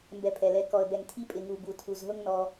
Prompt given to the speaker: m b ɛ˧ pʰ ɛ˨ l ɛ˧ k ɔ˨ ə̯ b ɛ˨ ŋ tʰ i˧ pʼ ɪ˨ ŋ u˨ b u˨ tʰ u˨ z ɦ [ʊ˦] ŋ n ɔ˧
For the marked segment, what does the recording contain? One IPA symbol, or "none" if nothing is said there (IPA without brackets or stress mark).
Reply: ʊ˦